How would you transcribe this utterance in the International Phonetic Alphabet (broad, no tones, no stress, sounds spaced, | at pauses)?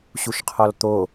ɕ u ʃ qʰ ɔ l t̪ o